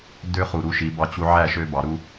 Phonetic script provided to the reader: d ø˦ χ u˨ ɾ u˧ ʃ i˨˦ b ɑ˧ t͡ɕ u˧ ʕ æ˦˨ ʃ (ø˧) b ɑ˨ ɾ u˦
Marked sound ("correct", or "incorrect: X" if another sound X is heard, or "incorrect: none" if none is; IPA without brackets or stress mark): correct